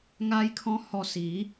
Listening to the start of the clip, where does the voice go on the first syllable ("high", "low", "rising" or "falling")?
high